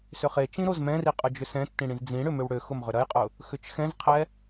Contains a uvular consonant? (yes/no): yes